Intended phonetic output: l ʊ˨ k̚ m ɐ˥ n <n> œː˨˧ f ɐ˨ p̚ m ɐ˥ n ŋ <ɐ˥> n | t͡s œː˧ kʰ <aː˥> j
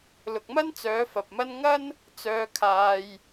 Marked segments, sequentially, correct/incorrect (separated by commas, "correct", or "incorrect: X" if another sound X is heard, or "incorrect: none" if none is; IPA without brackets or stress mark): incorrect: t͡s, correct, incorrect: aː˧